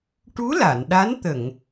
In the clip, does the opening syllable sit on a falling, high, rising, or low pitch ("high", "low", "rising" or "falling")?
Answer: rising